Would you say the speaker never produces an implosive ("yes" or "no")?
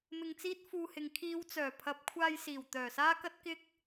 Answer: yes